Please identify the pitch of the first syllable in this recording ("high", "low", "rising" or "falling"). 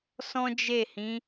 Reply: high